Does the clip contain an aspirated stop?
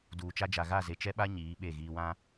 no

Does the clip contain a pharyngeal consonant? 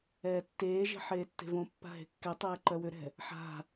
yes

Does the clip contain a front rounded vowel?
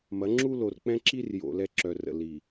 yes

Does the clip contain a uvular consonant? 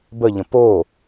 no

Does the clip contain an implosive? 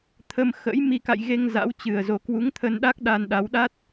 yes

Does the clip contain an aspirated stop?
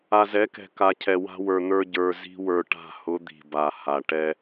yes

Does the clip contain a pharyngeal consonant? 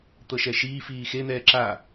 no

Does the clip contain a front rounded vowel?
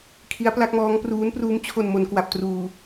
no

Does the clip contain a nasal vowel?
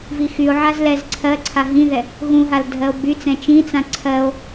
yes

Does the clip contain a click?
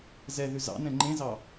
yes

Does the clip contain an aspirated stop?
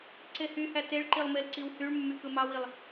no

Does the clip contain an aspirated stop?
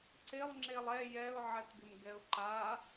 no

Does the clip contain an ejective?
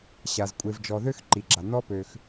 yes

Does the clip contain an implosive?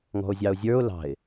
no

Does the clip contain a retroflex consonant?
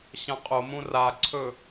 no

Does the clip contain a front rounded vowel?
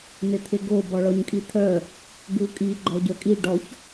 yes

